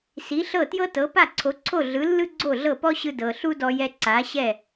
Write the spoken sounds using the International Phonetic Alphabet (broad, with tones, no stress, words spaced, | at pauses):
si˩˥ɬɤ˥˩tjɤ˥ tɤ˩˥ pa˥˩ǀʰo˩˥ ǀʰo˥˩ɮɯ˩˥ lːɯ˥ɡ͡ǀo˥˩ɮɤ˥˩ pɔ˥ɕɯ˧ dɤ˩ɬu˥dɔ˧jɛ˧ ǀa˩˥ɕɛ˥˩